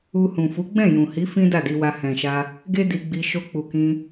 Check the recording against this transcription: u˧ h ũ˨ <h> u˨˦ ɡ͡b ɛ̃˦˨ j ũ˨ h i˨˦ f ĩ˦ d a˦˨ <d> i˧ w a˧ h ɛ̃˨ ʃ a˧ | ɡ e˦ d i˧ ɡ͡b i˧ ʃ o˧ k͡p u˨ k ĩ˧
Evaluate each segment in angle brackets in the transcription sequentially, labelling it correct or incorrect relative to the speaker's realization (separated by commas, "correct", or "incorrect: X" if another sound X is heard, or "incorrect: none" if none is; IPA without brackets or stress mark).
incorrect: f, correct